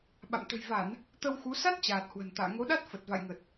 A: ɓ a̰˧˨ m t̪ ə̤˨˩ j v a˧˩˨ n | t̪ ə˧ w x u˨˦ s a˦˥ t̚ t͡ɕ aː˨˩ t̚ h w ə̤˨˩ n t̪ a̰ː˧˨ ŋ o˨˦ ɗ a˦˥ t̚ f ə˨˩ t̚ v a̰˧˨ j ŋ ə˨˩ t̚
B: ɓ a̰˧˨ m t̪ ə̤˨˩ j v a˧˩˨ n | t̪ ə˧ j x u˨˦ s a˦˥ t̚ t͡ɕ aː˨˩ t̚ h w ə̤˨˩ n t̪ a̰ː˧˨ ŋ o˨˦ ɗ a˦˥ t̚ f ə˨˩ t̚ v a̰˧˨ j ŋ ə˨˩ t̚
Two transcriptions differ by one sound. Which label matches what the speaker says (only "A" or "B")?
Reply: A